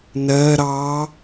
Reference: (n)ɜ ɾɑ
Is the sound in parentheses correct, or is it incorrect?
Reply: correct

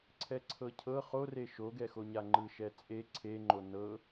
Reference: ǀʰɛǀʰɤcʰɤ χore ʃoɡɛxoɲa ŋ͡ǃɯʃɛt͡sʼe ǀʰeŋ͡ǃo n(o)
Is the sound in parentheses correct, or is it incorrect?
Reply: incorrect: ɤ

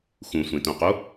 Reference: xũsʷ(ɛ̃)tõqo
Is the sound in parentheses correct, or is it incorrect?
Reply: incorrect: ẽ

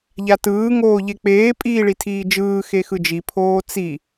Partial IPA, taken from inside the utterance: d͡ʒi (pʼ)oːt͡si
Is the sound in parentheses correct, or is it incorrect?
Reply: incorrect: pʰ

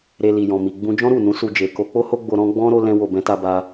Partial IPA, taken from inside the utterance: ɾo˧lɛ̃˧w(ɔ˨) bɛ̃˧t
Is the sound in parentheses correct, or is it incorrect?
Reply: incorrect: o˨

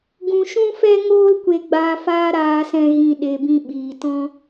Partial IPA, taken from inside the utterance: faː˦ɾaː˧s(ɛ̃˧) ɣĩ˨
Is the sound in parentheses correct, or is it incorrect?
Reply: correct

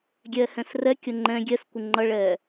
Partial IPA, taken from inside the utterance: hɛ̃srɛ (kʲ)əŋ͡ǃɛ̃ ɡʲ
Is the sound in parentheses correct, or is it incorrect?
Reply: correct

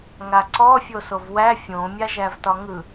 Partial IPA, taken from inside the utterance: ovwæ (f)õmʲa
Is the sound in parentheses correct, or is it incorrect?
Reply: incorrect: fʲ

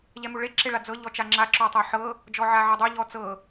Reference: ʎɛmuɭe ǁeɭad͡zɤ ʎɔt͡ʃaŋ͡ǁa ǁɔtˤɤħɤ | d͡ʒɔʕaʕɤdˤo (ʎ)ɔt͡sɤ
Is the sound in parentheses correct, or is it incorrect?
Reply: correct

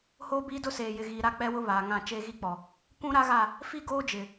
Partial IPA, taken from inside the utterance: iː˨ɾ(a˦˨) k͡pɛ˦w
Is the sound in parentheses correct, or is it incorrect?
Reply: correct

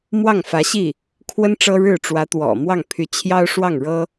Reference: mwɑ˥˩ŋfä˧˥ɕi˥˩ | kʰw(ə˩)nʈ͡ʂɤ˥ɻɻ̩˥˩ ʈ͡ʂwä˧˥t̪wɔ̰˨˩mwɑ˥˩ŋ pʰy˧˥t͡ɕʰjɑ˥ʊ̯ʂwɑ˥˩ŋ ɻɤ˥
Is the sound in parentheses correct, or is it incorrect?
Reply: incorrect: ə˥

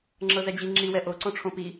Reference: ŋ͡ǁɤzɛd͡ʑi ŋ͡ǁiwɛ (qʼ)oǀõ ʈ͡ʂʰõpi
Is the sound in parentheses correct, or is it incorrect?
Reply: incorrect: ʔ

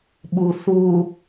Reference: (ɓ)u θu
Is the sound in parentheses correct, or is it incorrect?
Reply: correct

